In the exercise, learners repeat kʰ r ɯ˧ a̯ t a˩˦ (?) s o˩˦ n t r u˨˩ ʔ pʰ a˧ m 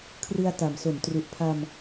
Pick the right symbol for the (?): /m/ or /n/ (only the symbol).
m